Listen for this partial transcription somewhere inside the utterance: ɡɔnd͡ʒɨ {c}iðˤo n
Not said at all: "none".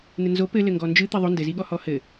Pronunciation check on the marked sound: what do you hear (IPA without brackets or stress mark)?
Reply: t̪